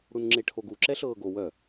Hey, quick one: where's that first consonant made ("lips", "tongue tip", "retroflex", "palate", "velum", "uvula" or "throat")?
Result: retroflex